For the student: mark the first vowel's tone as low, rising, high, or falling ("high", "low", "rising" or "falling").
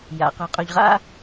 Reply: low